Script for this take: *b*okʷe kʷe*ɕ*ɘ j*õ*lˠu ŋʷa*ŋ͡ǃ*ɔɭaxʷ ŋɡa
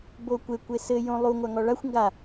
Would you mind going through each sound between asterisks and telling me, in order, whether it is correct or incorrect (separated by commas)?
correct, incorrect, correct, incorrect